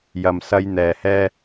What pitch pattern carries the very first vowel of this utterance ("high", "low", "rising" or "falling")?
low